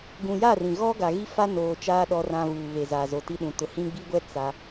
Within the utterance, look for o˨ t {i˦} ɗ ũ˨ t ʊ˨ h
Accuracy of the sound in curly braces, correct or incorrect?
correct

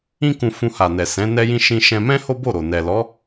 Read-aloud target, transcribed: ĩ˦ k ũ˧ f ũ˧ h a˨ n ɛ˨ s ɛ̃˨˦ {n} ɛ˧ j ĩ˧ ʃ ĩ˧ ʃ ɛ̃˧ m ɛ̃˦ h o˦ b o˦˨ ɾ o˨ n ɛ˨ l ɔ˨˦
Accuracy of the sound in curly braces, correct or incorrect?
correct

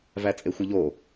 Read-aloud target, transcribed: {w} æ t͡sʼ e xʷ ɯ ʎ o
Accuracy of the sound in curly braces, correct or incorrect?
incorrect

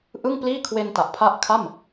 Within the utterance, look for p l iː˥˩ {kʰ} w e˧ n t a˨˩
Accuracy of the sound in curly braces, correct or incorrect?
correct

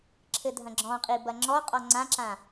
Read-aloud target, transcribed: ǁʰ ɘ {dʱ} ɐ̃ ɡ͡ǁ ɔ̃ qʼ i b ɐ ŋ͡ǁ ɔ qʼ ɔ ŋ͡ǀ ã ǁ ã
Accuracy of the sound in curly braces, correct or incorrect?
correct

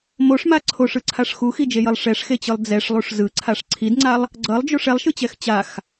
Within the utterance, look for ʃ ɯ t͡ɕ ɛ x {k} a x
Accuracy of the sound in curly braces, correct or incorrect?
incorrect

